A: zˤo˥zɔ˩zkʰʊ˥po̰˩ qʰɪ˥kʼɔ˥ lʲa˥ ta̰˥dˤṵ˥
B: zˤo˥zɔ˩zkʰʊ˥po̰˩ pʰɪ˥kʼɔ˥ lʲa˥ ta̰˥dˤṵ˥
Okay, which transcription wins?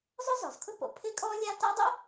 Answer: B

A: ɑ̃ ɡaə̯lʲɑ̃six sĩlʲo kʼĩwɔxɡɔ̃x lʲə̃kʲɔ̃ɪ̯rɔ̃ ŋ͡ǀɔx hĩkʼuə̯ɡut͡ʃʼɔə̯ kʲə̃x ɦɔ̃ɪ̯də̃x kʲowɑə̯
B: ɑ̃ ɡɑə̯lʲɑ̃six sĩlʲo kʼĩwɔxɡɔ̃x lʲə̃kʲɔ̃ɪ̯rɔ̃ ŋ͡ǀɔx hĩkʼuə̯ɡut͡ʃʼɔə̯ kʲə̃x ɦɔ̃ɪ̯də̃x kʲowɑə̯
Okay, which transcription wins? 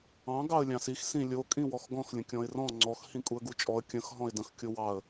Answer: B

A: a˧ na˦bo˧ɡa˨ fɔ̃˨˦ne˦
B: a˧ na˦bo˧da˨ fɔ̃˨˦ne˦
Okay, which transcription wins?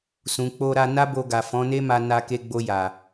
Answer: A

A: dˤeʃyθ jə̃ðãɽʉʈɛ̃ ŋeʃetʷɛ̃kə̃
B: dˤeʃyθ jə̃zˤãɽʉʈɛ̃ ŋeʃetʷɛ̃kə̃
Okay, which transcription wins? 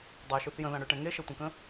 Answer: A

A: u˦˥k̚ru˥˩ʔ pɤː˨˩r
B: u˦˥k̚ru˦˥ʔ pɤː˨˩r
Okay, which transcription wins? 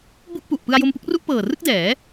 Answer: A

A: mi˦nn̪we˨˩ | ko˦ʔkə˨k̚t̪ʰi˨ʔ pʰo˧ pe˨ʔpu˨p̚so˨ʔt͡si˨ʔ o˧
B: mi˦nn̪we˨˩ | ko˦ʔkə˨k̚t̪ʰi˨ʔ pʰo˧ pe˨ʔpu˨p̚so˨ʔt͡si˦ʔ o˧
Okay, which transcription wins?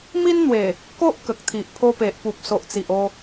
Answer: A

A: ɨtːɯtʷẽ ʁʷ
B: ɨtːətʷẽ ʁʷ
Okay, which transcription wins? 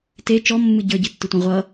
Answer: A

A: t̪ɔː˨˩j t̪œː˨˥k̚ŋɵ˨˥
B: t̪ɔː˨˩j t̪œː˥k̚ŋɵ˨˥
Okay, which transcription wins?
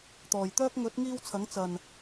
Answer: B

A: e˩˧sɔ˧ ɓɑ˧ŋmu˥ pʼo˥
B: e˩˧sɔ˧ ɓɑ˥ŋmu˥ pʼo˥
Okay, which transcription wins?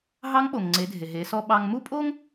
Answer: A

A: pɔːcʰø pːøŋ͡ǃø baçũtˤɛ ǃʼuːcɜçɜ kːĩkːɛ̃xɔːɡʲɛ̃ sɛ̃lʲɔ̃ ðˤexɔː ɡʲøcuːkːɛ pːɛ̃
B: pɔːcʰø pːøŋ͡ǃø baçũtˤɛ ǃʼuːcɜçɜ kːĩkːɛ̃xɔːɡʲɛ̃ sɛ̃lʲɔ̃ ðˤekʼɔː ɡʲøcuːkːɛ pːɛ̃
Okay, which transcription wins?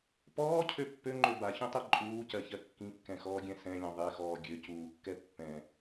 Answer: A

